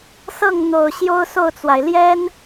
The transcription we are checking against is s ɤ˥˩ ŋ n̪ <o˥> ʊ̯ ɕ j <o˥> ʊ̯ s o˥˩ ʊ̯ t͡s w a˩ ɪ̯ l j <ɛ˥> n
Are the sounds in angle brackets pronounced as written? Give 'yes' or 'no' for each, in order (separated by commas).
no, yes, yes